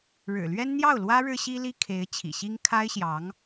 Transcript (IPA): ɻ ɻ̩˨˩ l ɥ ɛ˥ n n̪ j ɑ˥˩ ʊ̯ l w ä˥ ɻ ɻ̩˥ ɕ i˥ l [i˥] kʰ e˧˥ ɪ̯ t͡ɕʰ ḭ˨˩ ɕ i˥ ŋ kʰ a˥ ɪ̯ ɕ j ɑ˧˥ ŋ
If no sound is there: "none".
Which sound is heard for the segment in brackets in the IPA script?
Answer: i˥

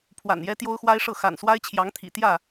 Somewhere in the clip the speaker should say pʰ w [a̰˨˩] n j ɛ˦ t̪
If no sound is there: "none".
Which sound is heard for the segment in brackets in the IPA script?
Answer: a̰˨˩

